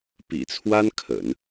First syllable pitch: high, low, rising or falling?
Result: low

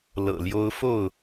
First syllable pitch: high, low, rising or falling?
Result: low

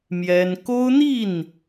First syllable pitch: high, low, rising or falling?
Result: high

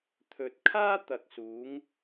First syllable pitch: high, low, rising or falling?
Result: low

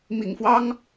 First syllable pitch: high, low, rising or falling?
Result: low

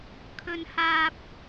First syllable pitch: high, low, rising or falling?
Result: high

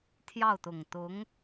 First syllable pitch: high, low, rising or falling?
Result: falling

